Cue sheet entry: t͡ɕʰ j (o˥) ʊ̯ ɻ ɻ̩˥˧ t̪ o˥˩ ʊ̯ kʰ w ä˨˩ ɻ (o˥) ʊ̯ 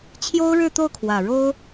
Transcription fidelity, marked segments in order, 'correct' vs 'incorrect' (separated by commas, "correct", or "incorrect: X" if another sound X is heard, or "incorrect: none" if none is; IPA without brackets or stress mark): correct, correct